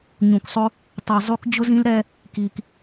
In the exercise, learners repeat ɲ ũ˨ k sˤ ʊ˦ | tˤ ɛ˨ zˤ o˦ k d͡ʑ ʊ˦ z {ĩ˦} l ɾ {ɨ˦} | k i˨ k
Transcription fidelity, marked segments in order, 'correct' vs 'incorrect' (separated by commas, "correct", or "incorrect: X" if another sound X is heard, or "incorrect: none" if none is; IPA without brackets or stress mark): correct, incorrect: ɛ˦